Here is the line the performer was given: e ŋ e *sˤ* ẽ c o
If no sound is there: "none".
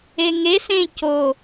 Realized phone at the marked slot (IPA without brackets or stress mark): s